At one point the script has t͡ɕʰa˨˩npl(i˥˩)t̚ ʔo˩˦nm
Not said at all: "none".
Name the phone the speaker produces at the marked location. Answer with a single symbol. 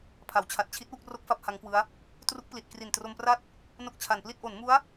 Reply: i˥˩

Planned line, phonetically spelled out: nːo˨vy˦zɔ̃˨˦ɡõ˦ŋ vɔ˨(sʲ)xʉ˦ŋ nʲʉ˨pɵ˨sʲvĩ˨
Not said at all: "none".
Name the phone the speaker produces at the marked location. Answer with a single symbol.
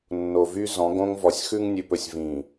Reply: sʲ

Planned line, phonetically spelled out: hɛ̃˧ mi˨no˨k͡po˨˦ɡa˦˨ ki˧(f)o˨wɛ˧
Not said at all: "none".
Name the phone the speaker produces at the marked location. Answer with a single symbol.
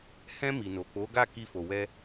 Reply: f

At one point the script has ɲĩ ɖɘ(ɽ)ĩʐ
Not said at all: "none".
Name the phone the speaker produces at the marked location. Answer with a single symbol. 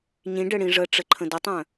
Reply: ɽ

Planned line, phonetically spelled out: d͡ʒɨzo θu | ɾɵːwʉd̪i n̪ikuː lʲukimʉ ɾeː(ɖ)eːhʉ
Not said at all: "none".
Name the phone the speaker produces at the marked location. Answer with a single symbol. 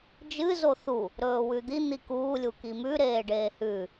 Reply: ɖ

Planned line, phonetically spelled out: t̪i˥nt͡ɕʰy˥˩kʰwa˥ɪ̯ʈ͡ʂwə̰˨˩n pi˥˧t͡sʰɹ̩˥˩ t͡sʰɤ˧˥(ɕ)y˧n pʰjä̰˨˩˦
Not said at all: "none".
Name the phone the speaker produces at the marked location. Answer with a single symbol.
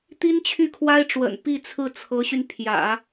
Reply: ɕ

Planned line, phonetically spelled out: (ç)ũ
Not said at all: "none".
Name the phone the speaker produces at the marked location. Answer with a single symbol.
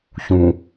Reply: ç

